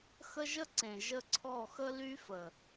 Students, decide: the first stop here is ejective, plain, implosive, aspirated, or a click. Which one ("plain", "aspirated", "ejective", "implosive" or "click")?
click